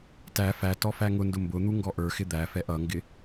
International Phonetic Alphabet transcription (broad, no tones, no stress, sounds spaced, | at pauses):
t æ f æ t ɔ f æ ŋ ʊ n d ʊ m b ʊ n̪ u ŋ ɡ ɔ ʔ ə˞ x ɪ d̪ æ f ɛ ʔ ʌ ŋ ɡ ɪ